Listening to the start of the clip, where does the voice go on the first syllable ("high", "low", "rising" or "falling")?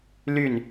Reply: falling